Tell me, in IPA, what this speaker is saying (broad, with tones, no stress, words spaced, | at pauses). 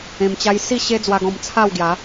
ẽ˧mt͡ɕa˦j si˥˧ ɕe˦d͡zwa˧ɡɔ̃˧m t͡sʰa˥˧wɡja˨˦